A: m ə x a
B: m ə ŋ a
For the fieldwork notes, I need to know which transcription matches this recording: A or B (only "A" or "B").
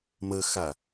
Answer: A